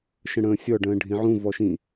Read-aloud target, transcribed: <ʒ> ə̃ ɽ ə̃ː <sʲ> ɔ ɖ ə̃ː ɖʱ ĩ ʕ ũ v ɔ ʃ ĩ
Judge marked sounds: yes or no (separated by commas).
no, yes